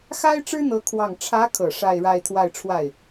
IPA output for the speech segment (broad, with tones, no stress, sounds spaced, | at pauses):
x a˥ ɪ̯ ʈ͡ʂ ɻ̩˥ n̪ ɤ˧˥ kʰ w ɑ˥˩ ŋ ʈ͡ʂʰ ä˧˥ kʰ ɤ˨˩ ʂ a˥˧ ɪ̯ ɻ a˥˧ ɪ̯ t̪ʰ w a˥˧ ɪ̯ ʈ͡ʂʰ w a˥˩ ɪ̯